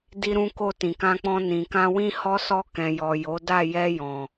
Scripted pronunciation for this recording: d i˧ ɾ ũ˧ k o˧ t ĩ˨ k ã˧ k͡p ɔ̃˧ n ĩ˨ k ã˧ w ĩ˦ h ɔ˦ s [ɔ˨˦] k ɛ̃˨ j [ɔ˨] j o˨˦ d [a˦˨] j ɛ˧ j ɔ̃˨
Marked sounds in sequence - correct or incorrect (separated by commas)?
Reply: incorrect, correct, correct